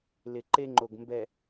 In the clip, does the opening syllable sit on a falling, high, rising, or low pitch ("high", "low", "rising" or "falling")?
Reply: low